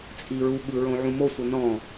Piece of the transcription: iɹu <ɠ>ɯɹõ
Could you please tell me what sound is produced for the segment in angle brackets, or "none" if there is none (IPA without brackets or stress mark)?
ɠ